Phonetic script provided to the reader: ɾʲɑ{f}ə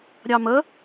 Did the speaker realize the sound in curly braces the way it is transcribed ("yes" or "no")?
no